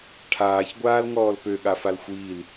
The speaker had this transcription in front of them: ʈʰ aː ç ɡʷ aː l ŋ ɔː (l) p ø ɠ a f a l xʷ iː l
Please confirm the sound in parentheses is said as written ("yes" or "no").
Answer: yes